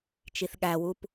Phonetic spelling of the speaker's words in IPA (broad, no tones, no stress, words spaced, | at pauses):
t͡ʃiθɠæwup